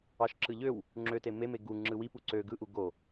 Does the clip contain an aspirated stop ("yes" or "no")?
no